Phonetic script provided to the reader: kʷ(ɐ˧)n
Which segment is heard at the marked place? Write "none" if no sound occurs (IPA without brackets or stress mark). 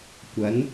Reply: ɐ˨˥